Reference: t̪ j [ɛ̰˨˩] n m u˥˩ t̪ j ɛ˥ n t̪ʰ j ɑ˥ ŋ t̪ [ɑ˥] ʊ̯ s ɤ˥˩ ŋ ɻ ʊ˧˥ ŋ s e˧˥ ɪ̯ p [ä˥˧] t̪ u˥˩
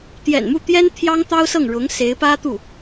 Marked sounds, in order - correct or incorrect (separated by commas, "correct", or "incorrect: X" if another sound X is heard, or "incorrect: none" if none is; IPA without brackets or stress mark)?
correct, correct, incorrect: ä˥